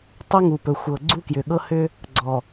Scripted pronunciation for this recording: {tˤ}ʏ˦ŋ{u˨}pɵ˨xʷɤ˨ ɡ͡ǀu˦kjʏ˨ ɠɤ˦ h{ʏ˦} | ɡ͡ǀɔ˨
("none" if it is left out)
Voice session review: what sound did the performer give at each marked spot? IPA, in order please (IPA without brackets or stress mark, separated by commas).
tˤ, u˨, ʏ˦